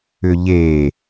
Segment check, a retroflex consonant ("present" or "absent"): absent